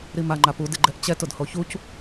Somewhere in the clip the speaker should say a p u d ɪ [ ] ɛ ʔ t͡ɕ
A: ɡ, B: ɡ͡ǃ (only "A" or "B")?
B